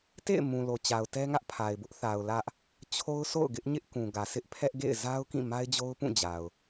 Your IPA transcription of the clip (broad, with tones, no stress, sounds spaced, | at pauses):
t ḛ˦˨ ɪ̯ m ũ˨ l o˨ t͡ɕ a˨ ʊ̯ t ɛ˦ ŋ ä˦ ʔ pʰ a˨ ɪ̯ b ʊ˦ ʔ θ a˨ ʊ̯ l ä˦ ʔ | t͡ɕʰ o˦ ʊ̯ s o̰˦˨ ʊ̯ ɡ ɪ˦ ʔ ɲ ɪ˦ ʔ k ũ˨ ɡ ä˨ sʰ ɪ˦ ʔ pʰ ɛ˦ ʔ ɡ ḛ˦˨ ɪ̯ z a˦ ʊ̯ k ĩ˦˨ m a˦ ɪ̯ d͡ʑ o˦ ʊ̯ p ũ˦˨ d͡ʑ a˨ ʊ̯